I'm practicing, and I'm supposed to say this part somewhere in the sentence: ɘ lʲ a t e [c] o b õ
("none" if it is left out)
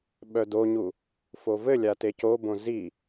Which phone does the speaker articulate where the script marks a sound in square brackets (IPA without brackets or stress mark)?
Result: c